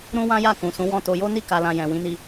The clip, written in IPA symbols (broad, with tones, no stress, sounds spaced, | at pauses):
ɾ ũ˦ w ã˦ j a˦˨ k ũ˨ s ũ˨˦ w ɔ̃˦˨ t o˧ j o˦ n i˦˨ k a˨ l ã˨ j ɛ̃˨ w ĩ˨˦ n i˧